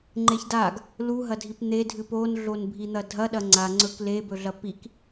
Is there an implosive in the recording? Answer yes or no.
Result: yes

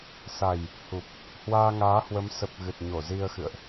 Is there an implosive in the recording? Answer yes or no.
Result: no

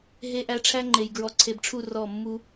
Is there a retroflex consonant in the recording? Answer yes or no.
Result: yes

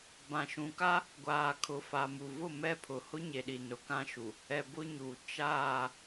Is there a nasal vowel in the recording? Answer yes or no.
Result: yes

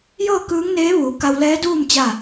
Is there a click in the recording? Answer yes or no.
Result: no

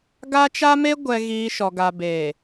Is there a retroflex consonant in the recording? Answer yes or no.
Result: no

